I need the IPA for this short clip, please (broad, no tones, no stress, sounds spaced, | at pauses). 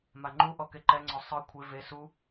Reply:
m a ŋ͡ǃ u ʔ ɔ k e ǃ ɛ ŋ͡ǀ ɔ sˤ ɯ kʷʰ e v e s u